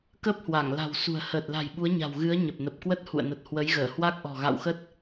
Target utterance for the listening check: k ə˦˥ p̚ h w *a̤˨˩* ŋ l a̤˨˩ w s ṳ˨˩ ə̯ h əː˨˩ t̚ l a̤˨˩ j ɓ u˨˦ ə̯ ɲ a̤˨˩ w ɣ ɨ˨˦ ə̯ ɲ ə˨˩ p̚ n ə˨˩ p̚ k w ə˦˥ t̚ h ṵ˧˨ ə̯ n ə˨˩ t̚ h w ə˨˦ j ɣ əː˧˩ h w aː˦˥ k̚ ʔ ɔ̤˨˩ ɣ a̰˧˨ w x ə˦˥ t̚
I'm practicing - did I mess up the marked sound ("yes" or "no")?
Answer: yes